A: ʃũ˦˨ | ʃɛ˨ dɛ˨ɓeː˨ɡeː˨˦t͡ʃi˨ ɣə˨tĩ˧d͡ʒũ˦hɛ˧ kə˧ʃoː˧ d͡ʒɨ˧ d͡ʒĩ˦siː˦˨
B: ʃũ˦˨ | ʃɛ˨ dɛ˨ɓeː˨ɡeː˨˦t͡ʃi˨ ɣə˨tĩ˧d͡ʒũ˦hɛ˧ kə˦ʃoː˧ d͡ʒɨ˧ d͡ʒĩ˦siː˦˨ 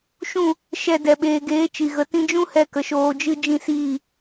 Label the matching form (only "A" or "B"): A